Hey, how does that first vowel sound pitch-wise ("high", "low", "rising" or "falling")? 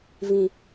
high